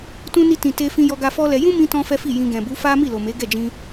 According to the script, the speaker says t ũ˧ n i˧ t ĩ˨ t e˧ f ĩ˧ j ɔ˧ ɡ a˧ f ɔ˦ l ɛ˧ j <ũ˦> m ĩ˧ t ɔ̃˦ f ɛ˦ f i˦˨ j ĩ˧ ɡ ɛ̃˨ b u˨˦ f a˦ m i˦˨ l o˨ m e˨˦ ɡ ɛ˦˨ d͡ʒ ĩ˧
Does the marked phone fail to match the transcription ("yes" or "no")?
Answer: no